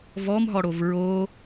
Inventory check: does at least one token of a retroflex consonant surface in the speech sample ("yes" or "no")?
yes